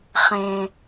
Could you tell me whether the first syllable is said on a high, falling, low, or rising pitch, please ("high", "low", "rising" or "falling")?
high